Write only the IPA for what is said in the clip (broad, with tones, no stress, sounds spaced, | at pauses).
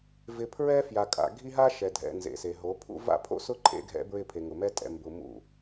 v ɪ˨ pʰ ɹ ɛ˦ f j a˨ kʼ a̰˨ ɡʱ i˦ ɦ a˦ ʃ ɛ˨ dʱ ɛ̰˨ n z ḛ˨ s e˨ ɦ o˨˦ pʰ ṵ˦ v a̰˦˨ pʰ o̰˦ s ʊ˦ ǃʰ ḛ˦ ɡʱ ɛ̰˦ b ɹ ɪ˦˨ pʰ e˨ ŋ ʊ˨ m ɛ˦ tʼ ɛ̰˨ m b ʊ˨ m ṵ˦˨